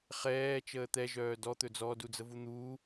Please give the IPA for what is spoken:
χ ɛː t͡ʃ əː t̪ ɛ ʒ œː d ɔ t̪ ɵ d͡z ɔ d u d͡z ə v u n̪ uː

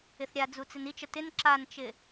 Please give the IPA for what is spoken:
ɪ θ ɾʲ a d͡z u t͡s ɪ n i t͡ʃ ə t ɪ n ǁ a n t͡ʃ ɪ

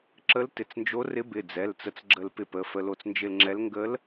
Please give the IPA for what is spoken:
ǁ ə˧˥ l t ɪ˩˧˩ t͡s n d͡ʒ o˧˥ r ɪ˧˥ b ɪ˩˧˩ d͡z ɛ˩˧˩ l t͡s ə˧ t͡s ɡ͡ǁ ə˧ l p ɪ˧ p ə˩˧˩ f ə˧ l o˧ t͡s n d͡ʒ ɪ˧ l ŋ͡ǁ ɛ˧˥ l ŋ ɡ ə˧˥ l

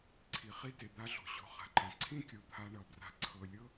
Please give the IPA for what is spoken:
ǀʰ i˨ χ i˦ t e˨ d̪ a˦ ɮ o̤˨ ɕ o̤˨˦ χ a̤˨ ǃ ã˨ ǀʰ ĩ˦ kʲ o˨ t̪ʰ a˧ ɳ ʌ˨˦ b r a̤˧ ǀʰ ɤ˨ lʲ ɤ˦

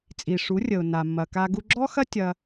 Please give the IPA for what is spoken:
t͡sʼ i˩ ʂ u˩˥ rʲ ə˩ ʊ̯ n a˩ mː ɐ˩ k a˧ ɡ u˧ ɡ͡ǁ ɔ˥ x ɐ˥ tʲ ɐ˧

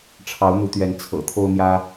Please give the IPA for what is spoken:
ʈ͡ʂʰ ɑ˨˦ ʊ̯ n̪ u˨˦ t̪ ɥ ɛ˨˦ n t͡sʰ ɤ̰˨˩ t̪ʰ o˦ ʊ̯ n̪ j ä˦

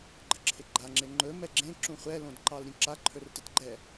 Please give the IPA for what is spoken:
ɡ͡ǃ ə ǁʰ ɪ ɡ͡ǃ a ŋ͡ǁ e ŋ͡ǃ ɵ m ɛ ɡ͡ǁ ẽ ǁ ũ χʷ ɛ l õ d ǃ ɑ l ɾʲ ũ ǁ a ǃʰ ɵ r t ɪ t ɡ͡ǃ ɛ

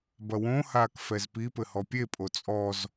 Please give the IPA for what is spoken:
b ɐ w õ h aː k f ɛ z p i p ɘ h ɔ pʲ e pʼ o t͡sʼ ɔ z

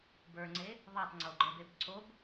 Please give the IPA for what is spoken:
b ə˞ ŋ͡ǀ e | ðˤ e tˤ ŋ͡ǀ o ɡ͡ǃ ə˞ b e b ǀʰ o b

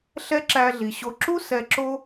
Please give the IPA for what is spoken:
ɬ ɛ˥ ǁ æ˧ ɮ i˩ ɕ o˧ ǁ u˥ s ɛ˧ ǁ o˥

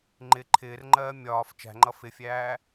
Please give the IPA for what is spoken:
ŋ͡ǃ ɪ ǃʰ ɪː r ŋ͡ǃ ɜː mʲ ɒː f t͡ʃ æ̤ ŋ͡ǃ ʌ f ɪ fʲ æː

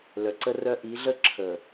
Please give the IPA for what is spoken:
l œ˨ ǀ ə˦ r œ˦ ʔ i˨˦ ɮ ə˦ ǁʰ ə˨

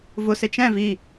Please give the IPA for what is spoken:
v ʊ s ɪ t͡ʃ ɛ̃ v i

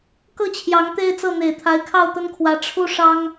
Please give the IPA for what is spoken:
k ɤ˥˩ t͡ɕʰ j ɑ˧˥ ŋ t̪ e˥˧ ɪ̯ t͡s ɤ˥˩ n̪ e˨˩ ɪ̯ t̪ʰ a˧˥ ɪ̯ kʰ ɑ˥˩ ʊ̯ t̪ ə˥ n kʰ w ä˧˥ ʈ͡ʂʰ u˥˩ ʂ ɑ˥ ŋ

